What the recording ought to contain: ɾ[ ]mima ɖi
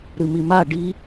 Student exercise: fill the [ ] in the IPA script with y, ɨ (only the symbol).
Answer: ɨ